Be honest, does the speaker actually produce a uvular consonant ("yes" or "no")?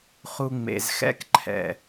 yes